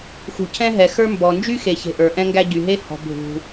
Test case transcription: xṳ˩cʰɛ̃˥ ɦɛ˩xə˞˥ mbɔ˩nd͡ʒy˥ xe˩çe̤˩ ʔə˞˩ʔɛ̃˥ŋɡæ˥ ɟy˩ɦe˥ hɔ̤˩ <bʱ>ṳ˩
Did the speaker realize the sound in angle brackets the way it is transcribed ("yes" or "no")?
yes